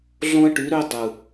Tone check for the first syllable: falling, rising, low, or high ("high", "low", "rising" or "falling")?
high